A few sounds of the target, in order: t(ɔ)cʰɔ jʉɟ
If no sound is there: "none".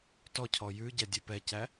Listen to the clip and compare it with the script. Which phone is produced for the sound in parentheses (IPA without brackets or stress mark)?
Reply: ɔ